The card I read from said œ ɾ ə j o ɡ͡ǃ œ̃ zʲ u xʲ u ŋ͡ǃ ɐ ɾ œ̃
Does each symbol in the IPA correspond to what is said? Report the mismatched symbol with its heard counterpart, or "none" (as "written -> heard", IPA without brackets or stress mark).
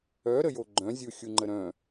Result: ɐ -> ə